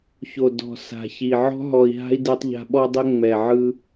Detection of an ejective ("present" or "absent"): absent